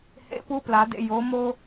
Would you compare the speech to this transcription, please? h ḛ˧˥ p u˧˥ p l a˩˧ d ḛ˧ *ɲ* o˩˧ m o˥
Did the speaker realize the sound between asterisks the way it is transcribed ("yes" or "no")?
no